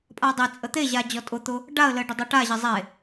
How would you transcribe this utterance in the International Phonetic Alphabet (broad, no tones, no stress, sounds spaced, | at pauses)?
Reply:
pʼ a dˤ e t͡sʼ ə t̪ e ʑ a d͡ʑ ɔ tʼ ʊ t̪ ʊ | ɖ a ə̯ l ə ɖ ə dˤ a ʈ a ʑ ə zˤ e